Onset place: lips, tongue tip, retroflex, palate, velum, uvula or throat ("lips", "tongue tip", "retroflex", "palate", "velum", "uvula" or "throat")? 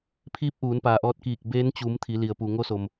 lips